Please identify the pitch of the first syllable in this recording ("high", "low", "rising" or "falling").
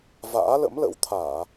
rising